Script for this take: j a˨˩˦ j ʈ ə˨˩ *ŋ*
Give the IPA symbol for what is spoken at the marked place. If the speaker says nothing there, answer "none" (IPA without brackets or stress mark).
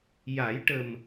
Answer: m